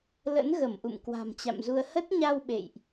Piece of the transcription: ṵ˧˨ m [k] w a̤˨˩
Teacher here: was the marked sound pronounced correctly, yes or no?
yes